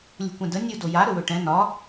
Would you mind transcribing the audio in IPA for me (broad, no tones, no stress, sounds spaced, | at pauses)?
lʲ ṳ kʷ ɛ̃ d ə nʲ u d o j a ɾ ɵ w ɵ ʈ ɛ̃ n ɒ